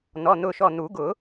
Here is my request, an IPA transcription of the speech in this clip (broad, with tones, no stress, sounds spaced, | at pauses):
n̪ ɔ˩˧˩ n̪ ʊ˧˩ ʃ ɔ˧˩ n̪ u˨˩˦ ɡ ʊ˨˩˦